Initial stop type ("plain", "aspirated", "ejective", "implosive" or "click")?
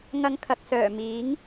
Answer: aspirated